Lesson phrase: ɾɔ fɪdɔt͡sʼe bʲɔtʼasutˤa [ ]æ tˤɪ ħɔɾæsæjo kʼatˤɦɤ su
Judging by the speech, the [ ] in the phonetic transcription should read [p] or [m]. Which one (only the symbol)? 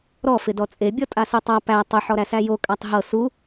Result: p